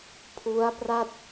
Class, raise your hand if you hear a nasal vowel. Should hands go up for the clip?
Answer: no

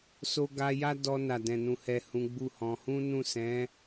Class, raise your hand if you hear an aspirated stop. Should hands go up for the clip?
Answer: no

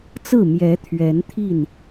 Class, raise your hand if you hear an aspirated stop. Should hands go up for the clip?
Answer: yes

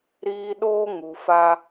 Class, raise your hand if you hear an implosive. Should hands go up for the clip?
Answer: yes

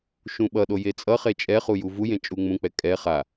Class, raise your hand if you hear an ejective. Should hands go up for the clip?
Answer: yes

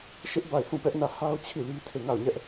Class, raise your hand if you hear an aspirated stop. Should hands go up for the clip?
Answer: yes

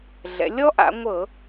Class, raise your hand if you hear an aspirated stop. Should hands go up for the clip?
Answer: no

